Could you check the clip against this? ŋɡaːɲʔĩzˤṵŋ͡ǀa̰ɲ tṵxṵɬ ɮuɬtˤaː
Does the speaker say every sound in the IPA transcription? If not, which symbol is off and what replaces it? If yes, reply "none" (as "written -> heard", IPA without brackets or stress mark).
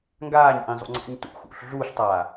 none